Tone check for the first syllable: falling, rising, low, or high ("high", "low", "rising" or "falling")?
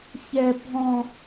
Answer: high